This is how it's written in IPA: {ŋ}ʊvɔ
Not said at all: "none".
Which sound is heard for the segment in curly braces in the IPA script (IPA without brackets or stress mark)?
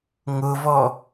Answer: ŋ